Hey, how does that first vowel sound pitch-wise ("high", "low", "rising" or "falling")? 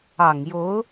low